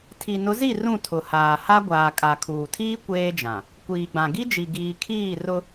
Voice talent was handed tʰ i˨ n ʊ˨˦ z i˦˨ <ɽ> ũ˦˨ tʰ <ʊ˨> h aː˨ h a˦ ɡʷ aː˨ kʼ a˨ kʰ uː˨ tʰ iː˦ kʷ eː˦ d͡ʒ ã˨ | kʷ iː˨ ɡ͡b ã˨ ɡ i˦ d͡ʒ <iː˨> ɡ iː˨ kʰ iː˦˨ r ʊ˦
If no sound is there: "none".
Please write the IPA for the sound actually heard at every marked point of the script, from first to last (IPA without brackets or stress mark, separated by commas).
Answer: r, ʊ˨, i˨